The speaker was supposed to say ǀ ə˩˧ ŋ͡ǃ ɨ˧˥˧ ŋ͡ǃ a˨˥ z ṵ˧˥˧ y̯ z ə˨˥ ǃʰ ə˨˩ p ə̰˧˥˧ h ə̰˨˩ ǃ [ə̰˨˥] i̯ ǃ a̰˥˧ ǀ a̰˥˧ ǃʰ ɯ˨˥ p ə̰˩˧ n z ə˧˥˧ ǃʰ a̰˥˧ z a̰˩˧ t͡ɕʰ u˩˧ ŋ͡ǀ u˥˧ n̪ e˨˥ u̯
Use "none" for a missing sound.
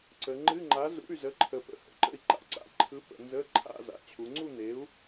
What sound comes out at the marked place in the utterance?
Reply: ə̰˨˥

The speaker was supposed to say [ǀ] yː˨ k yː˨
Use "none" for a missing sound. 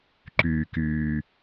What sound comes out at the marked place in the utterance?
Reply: ǃ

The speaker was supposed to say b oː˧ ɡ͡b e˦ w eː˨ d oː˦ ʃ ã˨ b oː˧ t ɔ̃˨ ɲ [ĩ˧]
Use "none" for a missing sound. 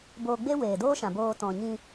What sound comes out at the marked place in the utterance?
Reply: ĩ˧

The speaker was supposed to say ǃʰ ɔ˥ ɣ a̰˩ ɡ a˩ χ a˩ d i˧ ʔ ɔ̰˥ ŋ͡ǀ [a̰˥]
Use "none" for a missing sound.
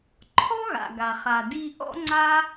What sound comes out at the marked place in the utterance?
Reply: a˥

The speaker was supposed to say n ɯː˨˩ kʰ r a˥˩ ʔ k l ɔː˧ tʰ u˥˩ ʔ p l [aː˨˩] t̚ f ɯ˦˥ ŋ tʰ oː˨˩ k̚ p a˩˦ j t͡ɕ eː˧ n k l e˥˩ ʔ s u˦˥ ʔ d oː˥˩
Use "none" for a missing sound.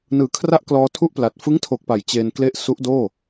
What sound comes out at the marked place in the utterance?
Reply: a˨˩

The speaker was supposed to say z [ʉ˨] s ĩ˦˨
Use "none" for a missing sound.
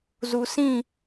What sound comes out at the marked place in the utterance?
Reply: u˨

